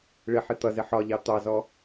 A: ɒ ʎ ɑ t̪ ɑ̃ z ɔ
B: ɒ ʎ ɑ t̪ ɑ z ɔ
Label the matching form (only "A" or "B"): B